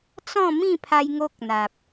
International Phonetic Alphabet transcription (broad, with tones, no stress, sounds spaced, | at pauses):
t͡s ɔ̃˥˧ m ĩ˥˧ pʰ a˧ j ŋ o˦ k̚ n̪ a˨ p̚